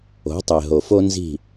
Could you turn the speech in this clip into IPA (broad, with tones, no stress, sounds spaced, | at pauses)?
o̤˩˥ tˤ e˩ ɦ o˩ f o˧ n z i̤˥˩